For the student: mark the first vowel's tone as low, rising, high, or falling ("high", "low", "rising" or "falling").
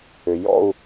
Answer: low